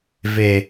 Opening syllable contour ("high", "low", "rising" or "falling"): low